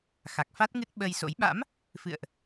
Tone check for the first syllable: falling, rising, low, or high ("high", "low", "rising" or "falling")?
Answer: low